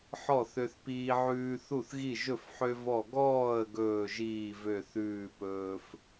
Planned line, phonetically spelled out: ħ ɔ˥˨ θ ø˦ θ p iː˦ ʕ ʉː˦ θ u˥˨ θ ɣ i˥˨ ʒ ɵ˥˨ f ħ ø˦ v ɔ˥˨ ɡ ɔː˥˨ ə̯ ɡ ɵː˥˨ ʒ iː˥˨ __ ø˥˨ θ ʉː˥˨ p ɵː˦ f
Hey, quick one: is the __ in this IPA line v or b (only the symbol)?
v